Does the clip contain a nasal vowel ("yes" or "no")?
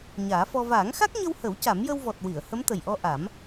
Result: no